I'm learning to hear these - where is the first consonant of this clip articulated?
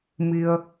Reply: lips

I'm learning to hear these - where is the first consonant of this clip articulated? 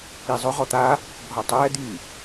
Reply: tongue tip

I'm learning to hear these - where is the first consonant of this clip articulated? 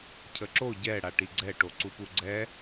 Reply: palate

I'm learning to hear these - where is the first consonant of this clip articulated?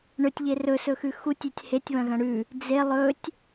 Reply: retroflex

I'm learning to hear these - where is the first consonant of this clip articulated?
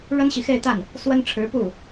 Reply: retroflex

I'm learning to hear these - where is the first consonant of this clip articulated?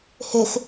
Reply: throat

